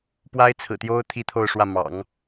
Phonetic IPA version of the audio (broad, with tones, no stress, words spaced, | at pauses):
pwa˥ɪ̯t͡sʰɹ̩˨˩t̪jo˥ʊ̯ t̪ʰi˥t̪ʰo˥˧ʊ̯ʂwä˥˩ mɑ̰˨˩˦ŋ